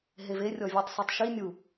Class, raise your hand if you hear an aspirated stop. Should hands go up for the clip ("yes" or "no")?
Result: no